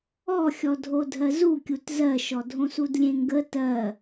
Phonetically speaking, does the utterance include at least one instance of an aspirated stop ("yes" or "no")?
no